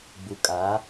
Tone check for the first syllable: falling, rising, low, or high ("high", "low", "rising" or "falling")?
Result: low